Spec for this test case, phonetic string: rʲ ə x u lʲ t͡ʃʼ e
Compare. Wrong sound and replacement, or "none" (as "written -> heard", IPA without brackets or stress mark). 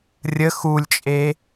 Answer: none